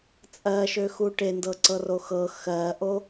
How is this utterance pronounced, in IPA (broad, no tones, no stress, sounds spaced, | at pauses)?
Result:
t͡sʼ ɜ ʃ ø x u ʈ e n d ɤ ǀ ɤ r o x ɤ x ɜ ʔ o